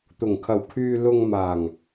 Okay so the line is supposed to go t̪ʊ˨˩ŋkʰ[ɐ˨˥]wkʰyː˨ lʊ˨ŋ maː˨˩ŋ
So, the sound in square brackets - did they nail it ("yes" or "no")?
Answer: no